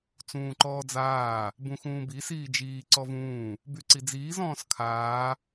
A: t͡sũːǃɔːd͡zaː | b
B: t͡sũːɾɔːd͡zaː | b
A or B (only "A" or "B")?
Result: A